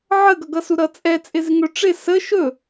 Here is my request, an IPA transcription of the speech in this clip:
ʕ ə ɡ ʌ ɡ ʌ s u ɾ ʌ t͡sʼ ɛ t͡sʼ ɪ z ɪ ŋ ɵ ʈ͡ʂ ɪ s ə ʃ ɵ

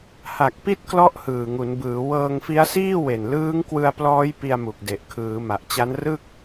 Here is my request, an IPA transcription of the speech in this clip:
h a˨˩ k̚ p i˥˩ t̚ k l ɔ˥˩ ʔ h ɯː˨˩ ŋ u˩˦ n b ɯː˩˦ w ɤː˧ ŋ f i˦˥ a̯ s iː˥˩ w e˨˩ n l ɯː˦˥ ŋ k w ɯ˧ a̯ p l ɔː˦˥ j p i˧ a̯ m u˨˩ k̚ d e˨˩ ʔ kʰ ɯː˩˦ m a˨˩ ʔ t͡ɕ a˦˥ n r ɯ˥˩ k̚

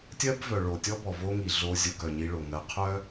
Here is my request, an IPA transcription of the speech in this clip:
tʲ ɜ˦ b v œ˨ ɭ o˨ tʲ ɔ˦ b ɔ˨ v o˦ ŋ i˨ ɮ o˧ zʲ o˧ ɡ œ˨ ɲ i˧ ɭ o˨ ŋ ɜ˧ qʰ œ˦

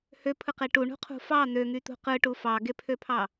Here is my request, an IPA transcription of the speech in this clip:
h ø pʰ ɯ q e ʈ u ɳ ṳ qʰ ṳ f ɑ n̪ ø ŋ y t̪ ṳ q ɯ ʈ u f ɑ ɡ e pʰ ø pʰ ɑ

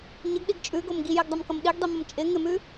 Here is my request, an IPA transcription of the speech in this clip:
ɲ ə ɡ ɗ i ɡ t͡ʃʼ ʉ ɡ o m ɡ i j ɪ ɡ dˤ ʌ m k ʌ m ɗ i ɡ dˤ i m ʌ m t͡ʃʼ ɪ ŋ ɪ m ʉ

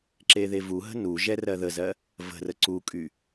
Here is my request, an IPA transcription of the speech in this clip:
ǁ e ð e v u ɦ ə̤ n u ʒ ɛ r ɜ ð ə z ɜ | v ə̤ r ə ǀ u kʼ y

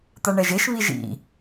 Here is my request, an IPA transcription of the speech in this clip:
t̪ a ɳ ɛ ʒ e ʃ β i ʒ ḭ

